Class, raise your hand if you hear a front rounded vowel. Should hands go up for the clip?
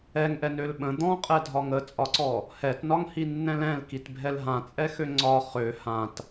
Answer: yes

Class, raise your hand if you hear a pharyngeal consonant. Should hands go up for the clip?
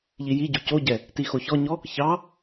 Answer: no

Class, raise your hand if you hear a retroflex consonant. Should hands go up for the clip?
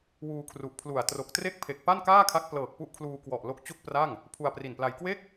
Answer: no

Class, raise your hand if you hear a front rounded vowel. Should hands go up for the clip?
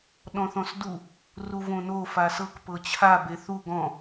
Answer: no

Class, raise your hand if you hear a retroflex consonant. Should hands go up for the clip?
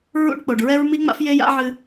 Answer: yes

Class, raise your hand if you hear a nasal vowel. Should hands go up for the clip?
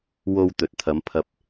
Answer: no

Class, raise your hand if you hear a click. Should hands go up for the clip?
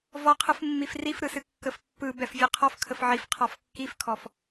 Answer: no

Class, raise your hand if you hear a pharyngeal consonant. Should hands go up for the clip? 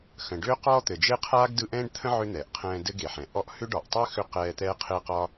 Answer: yes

